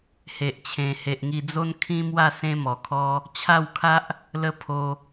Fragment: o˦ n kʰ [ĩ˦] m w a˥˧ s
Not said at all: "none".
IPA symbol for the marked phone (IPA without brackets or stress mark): ĩ˦